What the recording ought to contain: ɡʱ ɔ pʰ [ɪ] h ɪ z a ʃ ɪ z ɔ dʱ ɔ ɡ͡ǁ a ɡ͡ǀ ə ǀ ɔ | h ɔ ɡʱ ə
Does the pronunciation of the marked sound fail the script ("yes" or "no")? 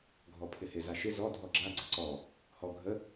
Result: no